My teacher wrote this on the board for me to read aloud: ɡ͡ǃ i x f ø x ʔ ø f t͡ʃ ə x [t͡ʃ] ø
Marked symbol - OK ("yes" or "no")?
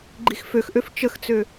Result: no